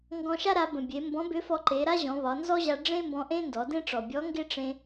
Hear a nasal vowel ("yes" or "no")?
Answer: yes